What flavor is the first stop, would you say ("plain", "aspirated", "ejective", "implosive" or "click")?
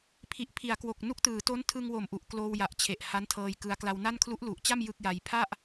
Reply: aspirated